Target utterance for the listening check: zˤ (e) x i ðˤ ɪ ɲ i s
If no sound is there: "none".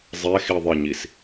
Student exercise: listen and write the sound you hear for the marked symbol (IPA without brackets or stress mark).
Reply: e